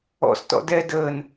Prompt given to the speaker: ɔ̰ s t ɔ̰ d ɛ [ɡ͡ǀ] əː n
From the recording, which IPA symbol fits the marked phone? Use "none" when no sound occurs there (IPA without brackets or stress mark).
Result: d